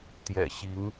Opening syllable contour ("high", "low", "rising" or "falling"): low